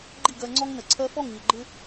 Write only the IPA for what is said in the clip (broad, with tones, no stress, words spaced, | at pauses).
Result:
ɡ͡ǃi˦˨ɡɜ˧ŋ͡ǀɔ˦ŋ nə˨ǀʰɜ˧fɔ˦˨ŋ ɲə˨ɡ͡ǃɪ˦